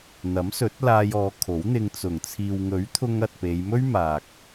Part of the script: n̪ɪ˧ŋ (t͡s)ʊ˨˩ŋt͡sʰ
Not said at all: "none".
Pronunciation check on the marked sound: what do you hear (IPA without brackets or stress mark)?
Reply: t͡s